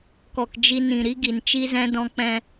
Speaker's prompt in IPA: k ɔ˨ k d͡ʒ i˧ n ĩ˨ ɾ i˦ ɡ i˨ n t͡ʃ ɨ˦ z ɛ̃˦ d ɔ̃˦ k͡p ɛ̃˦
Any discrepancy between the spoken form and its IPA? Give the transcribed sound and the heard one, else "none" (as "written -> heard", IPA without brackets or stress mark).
ɨ˦ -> i˦